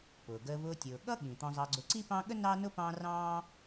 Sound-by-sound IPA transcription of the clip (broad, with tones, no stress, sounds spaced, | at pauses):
p ʊː˩ ɡ əː˨ v ʊː˨ tʲ ʊː˩ ɠ ʌ˥ ɠ ĩ˩ t̪ ɔ̃˨ zˤ ɑ˨ ɡ͡ǀ ʊ˨ ǀ i˥ p ɑ̃˦ ɠ ə˥ n ɑ˥ n ʊ˥ p ɑ̃ː˦ r ɑ̃ː˥